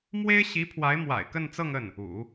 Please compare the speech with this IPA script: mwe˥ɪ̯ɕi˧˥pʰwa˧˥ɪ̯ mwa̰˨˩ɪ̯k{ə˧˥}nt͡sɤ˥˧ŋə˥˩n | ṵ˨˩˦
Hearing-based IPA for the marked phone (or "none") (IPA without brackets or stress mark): ə˥˧